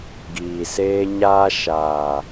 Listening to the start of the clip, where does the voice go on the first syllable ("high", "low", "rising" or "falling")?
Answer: low